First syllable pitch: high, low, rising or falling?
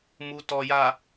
low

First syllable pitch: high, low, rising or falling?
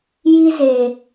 high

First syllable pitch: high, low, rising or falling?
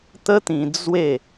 high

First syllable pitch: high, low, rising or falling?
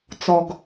low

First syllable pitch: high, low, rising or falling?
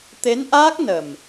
rising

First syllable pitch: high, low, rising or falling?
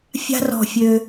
high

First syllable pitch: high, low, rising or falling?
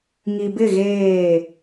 low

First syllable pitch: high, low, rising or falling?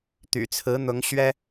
low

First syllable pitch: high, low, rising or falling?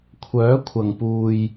rising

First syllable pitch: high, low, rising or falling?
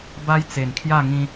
high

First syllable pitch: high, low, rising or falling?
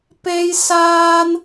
high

